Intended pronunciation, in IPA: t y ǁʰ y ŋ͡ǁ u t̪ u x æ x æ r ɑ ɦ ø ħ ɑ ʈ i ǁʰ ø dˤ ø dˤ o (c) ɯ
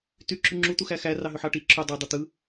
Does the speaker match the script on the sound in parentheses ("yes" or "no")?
no